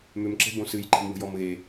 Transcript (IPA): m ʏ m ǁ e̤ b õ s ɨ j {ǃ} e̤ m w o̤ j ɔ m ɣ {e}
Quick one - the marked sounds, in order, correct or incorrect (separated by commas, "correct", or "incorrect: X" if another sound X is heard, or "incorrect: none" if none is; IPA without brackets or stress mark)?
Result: correct, correct